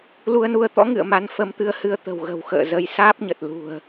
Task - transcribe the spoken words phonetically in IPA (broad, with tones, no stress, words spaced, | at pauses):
lu˧ə̯nu˧ə̯t̪ɔ̰˧˥ ŋɨ̰˧˨ə̯ma˧n fə˧mt̪ɨ˧ə̯hɨ˧ə̯ t̪ə̤˨˩wɣə̤˨˩wxə̰ː˧˨ zə˧j saː˦˥p̚ɲə˨˩t̚ lṳ˨˩ə̯